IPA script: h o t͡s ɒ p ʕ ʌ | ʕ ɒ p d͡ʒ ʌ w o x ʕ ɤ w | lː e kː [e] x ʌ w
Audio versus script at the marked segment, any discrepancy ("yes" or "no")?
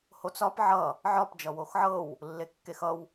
no